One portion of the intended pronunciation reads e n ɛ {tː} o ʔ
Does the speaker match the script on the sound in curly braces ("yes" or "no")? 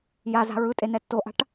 yes